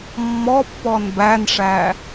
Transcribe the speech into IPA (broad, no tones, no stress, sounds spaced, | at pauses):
mː ɔ pː ɔ n b æ n ʂ æ